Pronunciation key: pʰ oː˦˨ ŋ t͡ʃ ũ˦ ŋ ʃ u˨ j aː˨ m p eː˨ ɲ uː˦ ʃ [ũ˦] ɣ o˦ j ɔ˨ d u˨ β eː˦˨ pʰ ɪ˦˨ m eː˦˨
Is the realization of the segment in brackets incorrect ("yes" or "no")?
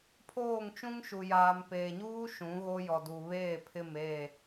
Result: yes